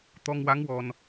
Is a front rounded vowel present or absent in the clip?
absent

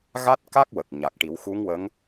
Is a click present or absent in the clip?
absent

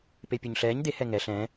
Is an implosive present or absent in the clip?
absent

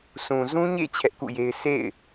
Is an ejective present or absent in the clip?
absent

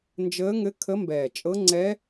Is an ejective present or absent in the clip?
present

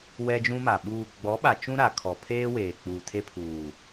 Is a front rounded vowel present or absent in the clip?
absent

